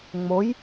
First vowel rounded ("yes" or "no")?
yes